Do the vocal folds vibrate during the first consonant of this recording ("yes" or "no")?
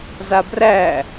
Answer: yes